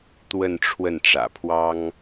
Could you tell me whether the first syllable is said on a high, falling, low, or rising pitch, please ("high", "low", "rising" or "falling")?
falling